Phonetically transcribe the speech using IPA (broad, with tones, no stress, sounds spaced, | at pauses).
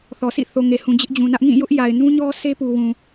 θ ɔ˨ sʰ ḭ˦˨ θ o˨ ŋ e˨ h ũ˨ d͡ʑ ɪ˦ ʔ d͡ʑ ũ˨ n ä˦ ʔ ŋ ĩ˦˨ j ʊ˦ ʔ j a˨ ɪ̯ n ũ˦ ɲ ɔ˦ sʰ e˦ p u˨ w ũ˨